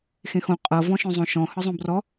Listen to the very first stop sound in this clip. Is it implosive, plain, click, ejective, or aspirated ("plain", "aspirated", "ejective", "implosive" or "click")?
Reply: ejective